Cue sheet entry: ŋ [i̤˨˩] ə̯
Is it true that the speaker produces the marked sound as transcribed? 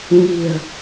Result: yes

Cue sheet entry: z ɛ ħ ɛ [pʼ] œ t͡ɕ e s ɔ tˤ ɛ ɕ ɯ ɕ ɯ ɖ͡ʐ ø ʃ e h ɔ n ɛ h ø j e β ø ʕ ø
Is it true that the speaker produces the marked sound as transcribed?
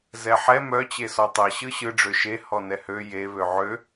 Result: no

